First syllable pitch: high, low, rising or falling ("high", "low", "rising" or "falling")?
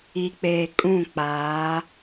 low